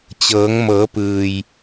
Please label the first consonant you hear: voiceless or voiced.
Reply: voiceless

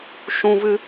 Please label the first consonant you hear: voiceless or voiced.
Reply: voiceless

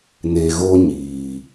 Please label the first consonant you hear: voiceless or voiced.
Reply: voiced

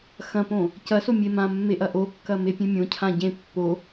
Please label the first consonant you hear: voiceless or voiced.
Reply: voiceless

